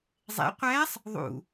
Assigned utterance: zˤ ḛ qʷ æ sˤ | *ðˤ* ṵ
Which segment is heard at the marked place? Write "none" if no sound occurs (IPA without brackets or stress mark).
ðˤ